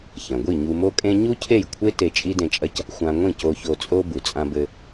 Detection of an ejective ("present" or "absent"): present